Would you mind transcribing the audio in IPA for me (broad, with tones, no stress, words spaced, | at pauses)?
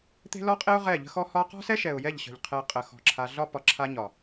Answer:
t̪e̤˦lɔ˦qʼe˦ʊ̯ ʁɛ˦˨ʎə̤˦xɔ˦ hɒ˦ qɔ̤˦sɛ˦ʃɛ˨ʊ̯ jɛ˦˨ʎɕə̤˨ʎ qʰɛ˧ qʼə˨xɔ̤˨ ǁʰa˧ ɮɒ˦pɒ˨ǁʰa˧ ɲɒ˨